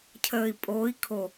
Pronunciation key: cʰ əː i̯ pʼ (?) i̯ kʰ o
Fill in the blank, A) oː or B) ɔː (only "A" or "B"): A